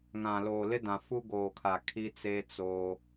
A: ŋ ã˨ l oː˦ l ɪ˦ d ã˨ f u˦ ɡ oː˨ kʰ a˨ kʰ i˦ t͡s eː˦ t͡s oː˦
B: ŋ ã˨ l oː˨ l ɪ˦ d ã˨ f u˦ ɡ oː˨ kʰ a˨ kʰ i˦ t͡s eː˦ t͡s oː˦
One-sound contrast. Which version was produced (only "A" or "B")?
B